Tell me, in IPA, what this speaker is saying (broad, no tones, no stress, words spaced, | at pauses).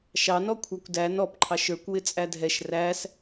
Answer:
ʃɑnɔkʷʰɑkʷ dæ nɔpǃʰɑʃ ə˞kʷwɪ t͡sʼædʱɛʃ ræs